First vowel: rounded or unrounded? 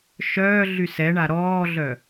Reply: rounded